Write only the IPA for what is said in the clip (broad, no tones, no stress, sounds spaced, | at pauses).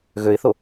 ɣ ø ɪ̯ θ o